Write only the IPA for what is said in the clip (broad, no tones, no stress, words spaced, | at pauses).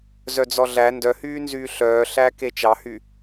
zœd͡zɔɮæ ndœhyːnzyː ɬœːɬæke t͡ʃɑhy